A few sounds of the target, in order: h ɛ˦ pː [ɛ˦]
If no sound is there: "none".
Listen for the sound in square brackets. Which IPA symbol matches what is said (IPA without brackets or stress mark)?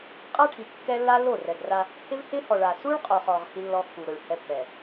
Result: ɛ˨